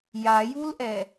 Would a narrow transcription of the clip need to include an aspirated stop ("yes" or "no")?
no